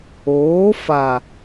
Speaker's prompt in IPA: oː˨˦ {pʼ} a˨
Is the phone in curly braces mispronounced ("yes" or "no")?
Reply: yes